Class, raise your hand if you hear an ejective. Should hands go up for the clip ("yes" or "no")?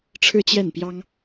no